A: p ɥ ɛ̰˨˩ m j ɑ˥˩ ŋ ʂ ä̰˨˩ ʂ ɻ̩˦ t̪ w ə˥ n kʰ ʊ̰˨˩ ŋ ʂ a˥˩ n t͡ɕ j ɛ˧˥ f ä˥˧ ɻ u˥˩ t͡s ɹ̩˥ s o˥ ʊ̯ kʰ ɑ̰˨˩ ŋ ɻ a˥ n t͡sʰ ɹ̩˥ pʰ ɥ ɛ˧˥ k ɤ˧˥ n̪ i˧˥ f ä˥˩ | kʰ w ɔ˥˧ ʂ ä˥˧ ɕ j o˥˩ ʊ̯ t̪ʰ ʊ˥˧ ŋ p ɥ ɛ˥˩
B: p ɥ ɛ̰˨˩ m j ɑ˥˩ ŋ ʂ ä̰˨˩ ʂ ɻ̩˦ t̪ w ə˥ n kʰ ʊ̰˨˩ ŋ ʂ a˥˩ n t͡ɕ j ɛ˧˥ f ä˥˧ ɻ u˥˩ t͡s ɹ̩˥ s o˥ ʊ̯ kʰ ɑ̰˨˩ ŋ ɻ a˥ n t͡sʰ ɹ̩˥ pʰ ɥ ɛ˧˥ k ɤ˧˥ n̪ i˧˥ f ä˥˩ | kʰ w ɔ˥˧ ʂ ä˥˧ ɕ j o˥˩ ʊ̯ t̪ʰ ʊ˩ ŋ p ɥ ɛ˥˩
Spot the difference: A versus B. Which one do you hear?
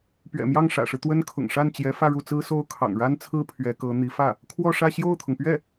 B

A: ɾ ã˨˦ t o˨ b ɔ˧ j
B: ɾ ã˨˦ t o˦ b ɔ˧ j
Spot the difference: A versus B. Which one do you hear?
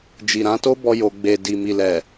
B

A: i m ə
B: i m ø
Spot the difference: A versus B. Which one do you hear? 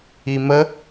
A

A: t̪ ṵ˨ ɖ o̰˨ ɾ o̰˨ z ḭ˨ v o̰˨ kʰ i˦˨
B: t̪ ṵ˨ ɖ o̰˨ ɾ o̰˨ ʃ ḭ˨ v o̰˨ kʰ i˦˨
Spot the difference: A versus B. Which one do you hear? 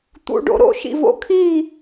B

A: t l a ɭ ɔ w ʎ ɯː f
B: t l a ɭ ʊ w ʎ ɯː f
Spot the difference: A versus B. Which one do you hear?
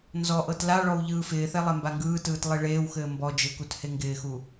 A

